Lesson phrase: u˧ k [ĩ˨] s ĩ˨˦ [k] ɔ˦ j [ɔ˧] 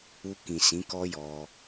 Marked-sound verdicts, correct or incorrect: correct, correct, correct

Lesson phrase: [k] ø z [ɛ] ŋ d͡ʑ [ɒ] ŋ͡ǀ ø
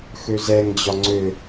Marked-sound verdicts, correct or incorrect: incorrect, correct, correct

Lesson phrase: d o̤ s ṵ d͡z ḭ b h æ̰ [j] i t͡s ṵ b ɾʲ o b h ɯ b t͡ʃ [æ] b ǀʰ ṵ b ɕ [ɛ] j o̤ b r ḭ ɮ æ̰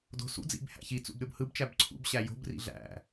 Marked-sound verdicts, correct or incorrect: incorrect, correct, incorrect

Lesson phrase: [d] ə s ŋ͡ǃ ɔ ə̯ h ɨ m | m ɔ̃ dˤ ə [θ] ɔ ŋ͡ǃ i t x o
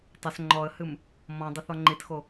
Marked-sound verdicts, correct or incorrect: incorrect, correct

